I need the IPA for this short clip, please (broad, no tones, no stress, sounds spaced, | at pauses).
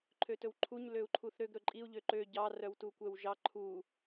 ǃʰ ø t ɵ w ǃʰ u ɲ l ø u̯ ǃʰ u θ ɾ ø ɡ ɾ ɵ ǃʼ i u̯ ʎ ø ǃ ø ɟ ɑ r œ w t u kʷ ɛ w ʒ ɑ ǃʰ u